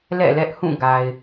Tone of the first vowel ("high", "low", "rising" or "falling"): falling